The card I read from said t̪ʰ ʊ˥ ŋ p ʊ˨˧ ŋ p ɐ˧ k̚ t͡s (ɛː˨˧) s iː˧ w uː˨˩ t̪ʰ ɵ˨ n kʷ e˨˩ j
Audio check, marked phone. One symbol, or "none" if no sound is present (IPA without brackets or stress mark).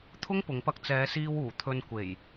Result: ɛː˨˧